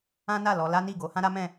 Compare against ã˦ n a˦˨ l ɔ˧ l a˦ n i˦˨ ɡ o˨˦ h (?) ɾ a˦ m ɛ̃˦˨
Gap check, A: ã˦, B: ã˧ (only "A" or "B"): A